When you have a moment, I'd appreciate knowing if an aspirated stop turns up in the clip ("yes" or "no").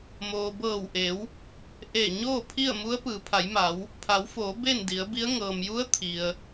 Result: yes